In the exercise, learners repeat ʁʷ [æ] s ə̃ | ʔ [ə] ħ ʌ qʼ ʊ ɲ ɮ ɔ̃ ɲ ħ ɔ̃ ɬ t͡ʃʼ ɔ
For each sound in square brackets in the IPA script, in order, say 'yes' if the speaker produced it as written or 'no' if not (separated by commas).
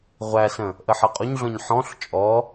yes, yes